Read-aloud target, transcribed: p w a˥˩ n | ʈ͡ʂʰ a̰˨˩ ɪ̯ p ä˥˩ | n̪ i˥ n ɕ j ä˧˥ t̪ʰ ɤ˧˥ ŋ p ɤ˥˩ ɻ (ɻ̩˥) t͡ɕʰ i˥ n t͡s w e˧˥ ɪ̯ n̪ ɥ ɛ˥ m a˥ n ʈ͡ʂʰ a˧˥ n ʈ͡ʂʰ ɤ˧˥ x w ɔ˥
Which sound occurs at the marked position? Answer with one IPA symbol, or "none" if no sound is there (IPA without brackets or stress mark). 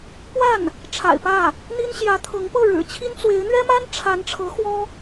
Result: ɻ̩˨˩